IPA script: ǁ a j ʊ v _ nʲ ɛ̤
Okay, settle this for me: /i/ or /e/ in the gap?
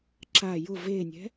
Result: e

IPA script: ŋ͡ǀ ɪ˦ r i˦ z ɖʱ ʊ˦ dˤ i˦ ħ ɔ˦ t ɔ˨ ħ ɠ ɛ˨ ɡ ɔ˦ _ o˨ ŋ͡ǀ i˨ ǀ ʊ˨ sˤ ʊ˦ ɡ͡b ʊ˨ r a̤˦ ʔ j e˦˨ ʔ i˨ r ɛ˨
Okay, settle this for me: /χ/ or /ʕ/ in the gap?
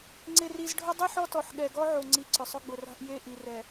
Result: ʕ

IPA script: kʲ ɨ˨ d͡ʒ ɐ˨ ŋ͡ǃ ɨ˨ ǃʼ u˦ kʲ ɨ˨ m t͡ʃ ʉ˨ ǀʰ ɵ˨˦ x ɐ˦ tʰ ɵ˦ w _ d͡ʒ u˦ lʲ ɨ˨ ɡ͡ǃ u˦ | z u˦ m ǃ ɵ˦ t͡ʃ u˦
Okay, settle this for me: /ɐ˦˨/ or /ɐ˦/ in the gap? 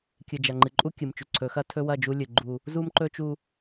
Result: ɐ˦˨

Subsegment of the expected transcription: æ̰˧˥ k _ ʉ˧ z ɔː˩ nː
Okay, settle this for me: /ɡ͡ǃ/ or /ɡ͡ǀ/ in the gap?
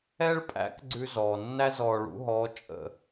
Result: ɡ͡ǀ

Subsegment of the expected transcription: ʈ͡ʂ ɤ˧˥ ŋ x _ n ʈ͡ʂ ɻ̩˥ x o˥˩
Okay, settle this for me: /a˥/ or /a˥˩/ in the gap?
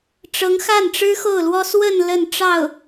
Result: a˥˩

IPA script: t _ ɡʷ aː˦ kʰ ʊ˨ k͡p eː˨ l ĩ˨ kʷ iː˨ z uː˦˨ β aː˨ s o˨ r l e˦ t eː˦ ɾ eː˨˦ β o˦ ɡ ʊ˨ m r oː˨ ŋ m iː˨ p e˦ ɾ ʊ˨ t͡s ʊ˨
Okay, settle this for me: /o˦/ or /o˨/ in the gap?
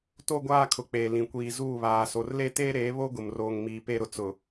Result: o˦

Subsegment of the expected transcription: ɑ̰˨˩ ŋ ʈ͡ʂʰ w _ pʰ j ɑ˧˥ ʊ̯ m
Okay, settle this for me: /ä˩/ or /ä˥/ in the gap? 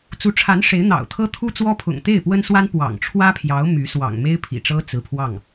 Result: ä˥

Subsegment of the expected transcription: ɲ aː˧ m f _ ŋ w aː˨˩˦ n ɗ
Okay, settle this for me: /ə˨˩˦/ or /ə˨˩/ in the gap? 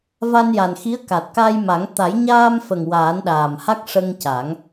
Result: ə˨˩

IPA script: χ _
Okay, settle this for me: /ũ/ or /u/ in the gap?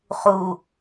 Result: u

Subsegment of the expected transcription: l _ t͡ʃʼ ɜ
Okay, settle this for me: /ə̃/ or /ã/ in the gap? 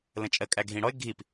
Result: ə̃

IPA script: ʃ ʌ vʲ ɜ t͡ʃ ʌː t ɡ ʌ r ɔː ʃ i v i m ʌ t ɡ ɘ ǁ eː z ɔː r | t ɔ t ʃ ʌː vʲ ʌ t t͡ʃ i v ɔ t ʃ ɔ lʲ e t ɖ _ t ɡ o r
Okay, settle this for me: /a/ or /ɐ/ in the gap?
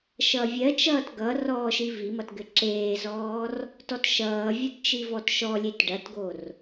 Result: ɐ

